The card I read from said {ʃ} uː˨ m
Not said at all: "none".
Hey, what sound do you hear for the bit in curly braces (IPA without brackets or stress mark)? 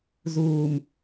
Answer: z